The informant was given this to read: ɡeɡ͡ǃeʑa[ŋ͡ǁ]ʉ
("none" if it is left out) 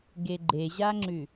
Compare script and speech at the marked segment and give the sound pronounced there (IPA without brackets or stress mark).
ŋ͡ǁ